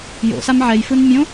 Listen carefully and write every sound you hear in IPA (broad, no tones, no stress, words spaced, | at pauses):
jo̰sam ʕɛjfɯn mʲõ